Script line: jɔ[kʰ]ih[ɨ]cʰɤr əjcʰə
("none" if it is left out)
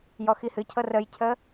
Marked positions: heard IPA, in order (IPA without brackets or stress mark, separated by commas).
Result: x, ɨ